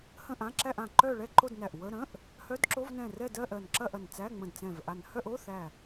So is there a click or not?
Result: yes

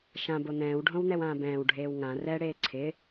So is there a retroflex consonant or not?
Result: yes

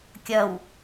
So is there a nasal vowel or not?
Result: no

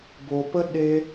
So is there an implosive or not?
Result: yes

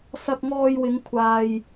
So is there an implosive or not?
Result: no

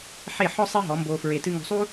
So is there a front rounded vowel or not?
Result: no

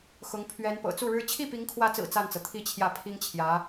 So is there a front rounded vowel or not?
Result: no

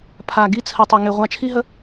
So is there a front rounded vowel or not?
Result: yes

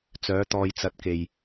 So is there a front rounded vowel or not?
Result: yes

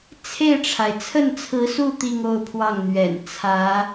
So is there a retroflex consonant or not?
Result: yes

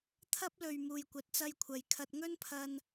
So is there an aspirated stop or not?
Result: yes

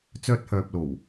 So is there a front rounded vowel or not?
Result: yes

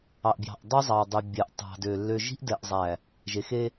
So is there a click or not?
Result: no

